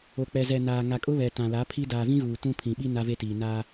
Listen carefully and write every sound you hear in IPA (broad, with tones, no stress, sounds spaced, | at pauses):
o˨ k͡p ɛ˨ z ɛ˨ n aː˨ ŋ a˨ kʼ ʊ˦ β ɛ˨ t ã˨ l a˨˦ pʰ i˦ d aː˨ v ĩ˦ ɣ uː˨ t ũ˦ pʰ ĩ˨ ɓ i˦ n a˦ v e˦ t iː˨ n aː˦